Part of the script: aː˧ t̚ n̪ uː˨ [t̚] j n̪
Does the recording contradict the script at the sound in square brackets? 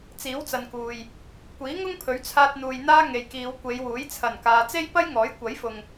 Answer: yes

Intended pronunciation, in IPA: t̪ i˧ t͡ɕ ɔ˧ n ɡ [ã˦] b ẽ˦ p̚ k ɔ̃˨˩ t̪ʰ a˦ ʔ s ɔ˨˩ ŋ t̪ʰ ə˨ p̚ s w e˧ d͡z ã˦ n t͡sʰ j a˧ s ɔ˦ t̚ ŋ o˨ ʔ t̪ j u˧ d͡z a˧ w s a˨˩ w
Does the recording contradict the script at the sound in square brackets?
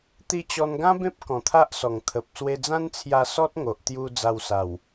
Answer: no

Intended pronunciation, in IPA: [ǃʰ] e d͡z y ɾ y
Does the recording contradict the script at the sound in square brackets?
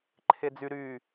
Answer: no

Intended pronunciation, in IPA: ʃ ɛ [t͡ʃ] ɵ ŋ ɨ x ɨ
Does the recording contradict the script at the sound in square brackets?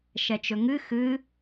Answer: no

